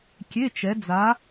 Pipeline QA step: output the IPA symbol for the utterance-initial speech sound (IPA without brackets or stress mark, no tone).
kʲ